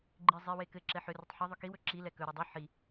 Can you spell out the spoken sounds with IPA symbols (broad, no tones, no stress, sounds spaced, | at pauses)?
ɡ͡ǃ i zˤ i w e k ɘ ǁ ɛ ħ ʏ r ʏ tˤ ħ ɘ ðˤ ʏ k i w ɵ ǁ i l ɛ k ɵ ɾ ɘ dˤ i ħ i